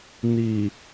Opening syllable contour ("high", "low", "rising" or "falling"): low